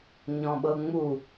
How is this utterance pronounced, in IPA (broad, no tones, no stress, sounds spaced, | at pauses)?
ɲ ɔ̃ ɓ ɤ ŋ͡m u